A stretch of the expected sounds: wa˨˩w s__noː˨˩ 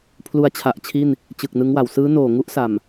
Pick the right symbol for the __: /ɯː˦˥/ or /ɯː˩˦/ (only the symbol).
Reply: ɯː˦˥